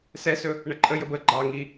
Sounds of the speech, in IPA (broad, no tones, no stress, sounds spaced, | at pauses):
s ɛ s ɵ | ɳ ə ǃʼ ə j ə b ə ɡ͡ǃ ɑ ŋ i